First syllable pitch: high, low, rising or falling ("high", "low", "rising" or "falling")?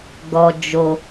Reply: low